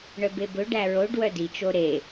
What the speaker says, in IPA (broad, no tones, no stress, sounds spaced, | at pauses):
ɳ œ b e b ɵ ɖ æ ɹ o ɖ w œ d i t͡ʃ o ɾ e